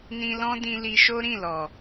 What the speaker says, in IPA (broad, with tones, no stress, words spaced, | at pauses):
nĩ˧lɔ̃˦dĩ˧li˧ ʃo˦ɾĩ˦˨ lɔ˨